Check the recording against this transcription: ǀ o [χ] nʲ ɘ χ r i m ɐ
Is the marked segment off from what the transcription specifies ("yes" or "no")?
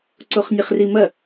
no